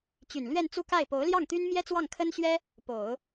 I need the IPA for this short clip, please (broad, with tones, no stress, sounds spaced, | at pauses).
t͡ɕ y˨˩ n l ɥ ɛ˥˧ n t͡s u˥˧ k a˥˩ ɪ̯ p o˧˥ ʊ̯ l j ɑ˥˩ ŋ t̪ y˥ n m j ɛ˥ t͡s w ɑ˥˩ ŋ kʰ ə˥ n ɕ ɥ ɛ˥ | p o˨˩˦ ʊ̯